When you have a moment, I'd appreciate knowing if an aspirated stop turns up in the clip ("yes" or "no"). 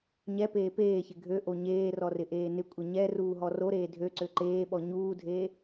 no